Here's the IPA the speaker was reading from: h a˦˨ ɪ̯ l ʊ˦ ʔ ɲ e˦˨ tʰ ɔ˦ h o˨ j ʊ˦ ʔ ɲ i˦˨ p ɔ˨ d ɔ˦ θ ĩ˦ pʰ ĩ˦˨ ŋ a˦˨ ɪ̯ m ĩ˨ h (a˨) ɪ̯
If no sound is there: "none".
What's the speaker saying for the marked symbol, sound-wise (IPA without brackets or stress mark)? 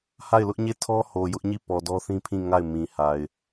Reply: a˨